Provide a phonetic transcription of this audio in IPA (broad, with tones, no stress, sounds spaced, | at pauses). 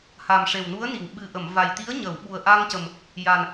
h a˨˩ m ʂ e˨˩ w n u˧˥ ə̯ n i˨˩˨ w ɓ ɨ˨˩ ʔ ə˨˩˨ m v a˨˩ j t̪ i˧˥ ə̯ ɲ ə˨˩˨ w ɓ u˨˩ ə̯ ʔ a˧ ŋ c ə˨˩ m | j a˨˩ n